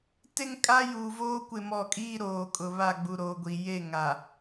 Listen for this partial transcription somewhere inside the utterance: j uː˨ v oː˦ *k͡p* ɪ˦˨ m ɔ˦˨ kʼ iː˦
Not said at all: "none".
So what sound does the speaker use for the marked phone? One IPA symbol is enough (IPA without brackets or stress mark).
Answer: kʷ